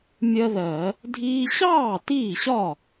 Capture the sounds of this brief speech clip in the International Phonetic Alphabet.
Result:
mʲ ɜ˦ ð ɜ˧˩˧ | dʱ iː˦ ɕ ɑː˥˩ t iː˥˩ ɕ ɒ˥˩

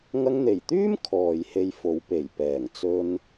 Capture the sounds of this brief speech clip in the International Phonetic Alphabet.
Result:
ŋ ɐ˧ ŋ n̪ e˨˩ j t̪ yː˥ m kʰ ɔː˨ j h e˧ j f o˨˧ w p e˨˩ j p ɛː˨˩ ŋ t͡s ɵ˧ n

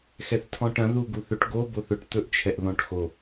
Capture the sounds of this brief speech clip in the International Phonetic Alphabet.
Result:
x ɛ θ tʰ ɔ̃ ʈ ɐ̃ ð u ɡ u θ ɵ ʈ ɡ o b o θ ɵ ʈ t̪ ɵ ʔ t͡ʃʰ ɛ ʔ ð ɔ̃ ʈ x o

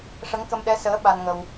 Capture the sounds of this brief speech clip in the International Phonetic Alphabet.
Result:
ʂ ə˧˥ ŋ k ə˧ m ɗ ɛ˧˥ s əː˧˥ ɓ a˧ n ŋ ə˧ w

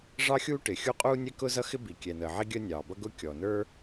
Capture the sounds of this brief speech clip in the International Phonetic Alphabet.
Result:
ʐ ɑ˥ xʲ uː˥ ʈ ɪ˩ xʲ u˥ qʼ uː˥ nʲ ɛ˥ k ʊː˥ z ʌ˥ x ɪ˥ b i˩ kʲ ɛ˩ n̪ əː˩ ʕ i˥ ɡʲ əː˥ nʲ ɑː˩ b ʌ˥ ɡ ʊ˥ kʲ ɔ˩ n ə˞˥

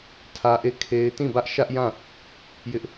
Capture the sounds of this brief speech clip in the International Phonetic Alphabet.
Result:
tʰ ä˦ ʔ e˦˨ kʰ e˦ ɪ̯ t ĩ˦˨ b ä˦ ʔ ʃ ä˦ ʔ j ã˦˨ | j ɪ˦ ʔ

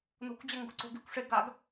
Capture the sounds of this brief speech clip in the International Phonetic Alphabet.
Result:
n o̤ kʷ d͡ʑ ɐ ŋ ɡ o̤ ǀ o̤ ɡ e̤ kʷ ʂ e ɡ a ɡ

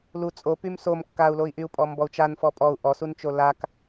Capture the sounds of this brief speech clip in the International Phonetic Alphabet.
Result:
l u t͡sʼ o p y m s o m kː a u̯ l o i̯ ʔ y u̯ pʼ ɔ m b ɔ u̯ t͡ʃ a n f ɔ pʼ ɔ u̯ ʔ ɔ s u n t͡ʃ o l a k

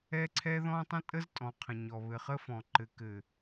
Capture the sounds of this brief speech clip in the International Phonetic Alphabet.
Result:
ɛ˦ ǀʰ ɛ˦ ð ɔ̃˦ tˤ ə̃˦ tʼ ə˦ z tʼ ɔ̃˨ qʰ ə̃˨ ɲ ɔ˨ β ɘ˨ χ ə˦ f ɔ̃˨ ǃ ɘ˨ k ɘ˨

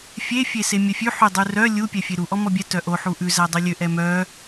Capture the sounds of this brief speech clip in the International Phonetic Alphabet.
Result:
fʲ e fʲ e s e mʲ œ fʲ ʉ ħ y dˤ ʉ r œ lʲ u pʲ ɛ fʲ e ɾ u ʔ ɔ m ɔ bʲ ɛ t œ ʔ o ħ u ʔ ʉ z æ dˤ y lʲ ø ʔ ɛ m œ

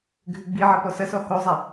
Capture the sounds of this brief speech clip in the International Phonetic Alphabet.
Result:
ɡʱ ʉ ɡ͡b i ʕ ɐ p ɔ s ɐ s ɔ h o zˤ a

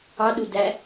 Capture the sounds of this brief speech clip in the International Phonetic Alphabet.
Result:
ɑ ɗ u d æ

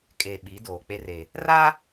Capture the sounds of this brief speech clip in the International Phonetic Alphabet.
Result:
kʼ eː˨ ɓ i˨˦ d oː˨ k͡p e˦ r e˨ | r a˦

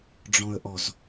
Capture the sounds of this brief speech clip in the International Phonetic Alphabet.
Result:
ɖ͡ʐ ɔ̃ ə̯ ʔ ɔ z

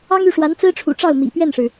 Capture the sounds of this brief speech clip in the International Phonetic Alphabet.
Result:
ɑ˥ ŋ y˥˩ ʂ w a˧˥ n t͡s ɹ̩˥ ʈ͡ʂʰ ṵ˨˩ ʈ͡ʂ ɑ˥˩ ʊ̯ m ḭ˨˩ p ɥ ɛ˥˩ n ʂ ɻ̩˩

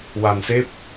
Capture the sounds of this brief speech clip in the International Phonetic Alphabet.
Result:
w a˨˩ n s e˦˥ p̚

